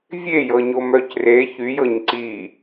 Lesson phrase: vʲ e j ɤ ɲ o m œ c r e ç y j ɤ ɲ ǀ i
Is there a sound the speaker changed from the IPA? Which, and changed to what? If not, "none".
none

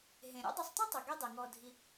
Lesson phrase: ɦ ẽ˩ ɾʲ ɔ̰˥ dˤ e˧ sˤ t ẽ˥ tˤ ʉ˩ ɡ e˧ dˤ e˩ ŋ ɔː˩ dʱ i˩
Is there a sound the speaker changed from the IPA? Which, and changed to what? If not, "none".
none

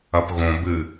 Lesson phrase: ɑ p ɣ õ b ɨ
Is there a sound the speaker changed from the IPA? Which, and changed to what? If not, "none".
ɑ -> ɐ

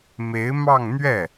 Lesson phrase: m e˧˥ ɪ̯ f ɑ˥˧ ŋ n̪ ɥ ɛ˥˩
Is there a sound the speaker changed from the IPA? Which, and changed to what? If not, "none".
f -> m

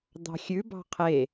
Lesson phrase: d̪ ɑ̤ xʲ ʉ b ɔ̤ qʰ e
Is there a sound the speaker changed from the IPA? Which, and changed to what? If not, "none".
ɔ̤ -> ɑ̤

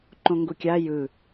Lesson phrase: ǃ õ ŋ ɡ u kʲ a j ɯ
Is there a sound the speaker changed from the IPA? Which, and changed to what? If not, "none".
none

